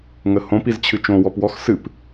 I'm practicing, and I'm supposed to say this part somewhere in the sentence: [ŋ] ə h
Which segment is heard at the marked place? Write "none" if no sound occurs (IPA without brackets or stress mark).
ŋ